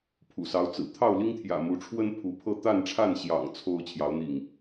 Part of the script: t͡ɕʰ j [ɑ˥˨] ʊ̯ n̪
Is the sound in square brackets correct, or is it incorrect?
incorrect